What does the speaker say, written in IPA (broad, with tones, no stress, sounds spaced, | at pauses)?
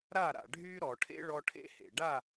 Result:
ɾ a˦˨ ɾ a̰˨ ɖʱ y˦ ɾ ɔ˨ ʈʰ ḛ˦ ɭ ɔ˦ ʈʰ ḛ˦ h ḛ˨ ɖ a˦˨